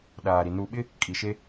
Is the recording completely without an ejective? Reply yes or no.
no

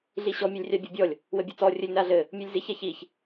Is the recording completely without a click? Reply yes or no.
yes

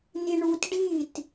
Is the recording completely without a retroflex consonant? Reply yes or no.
no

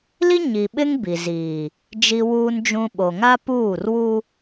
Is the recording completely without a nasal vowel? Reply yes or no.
no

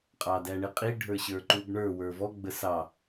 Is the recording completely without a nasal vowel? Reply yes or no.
yes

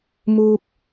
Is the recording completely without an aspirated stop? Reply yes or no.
yes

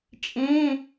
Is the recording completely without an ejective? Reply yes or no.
no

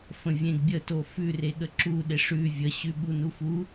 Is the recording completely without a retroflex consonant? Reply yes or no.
no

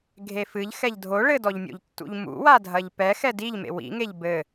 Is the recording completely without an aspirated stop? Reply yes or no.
yes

